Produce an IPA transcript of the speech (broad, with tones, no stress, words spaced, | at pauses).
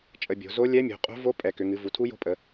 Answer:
t͡ʃʼə˩˧bʲo̤˩˧ zo˧˥lʲɛ˧˥mʲo̤˩˧ qʼo̤˧˥vo˧˥ pʼɛ˩˧kʏ˩˧ŋɨ˩˧ vu˩˧tʰu˧˥jo̤˧˥pʼə˩˧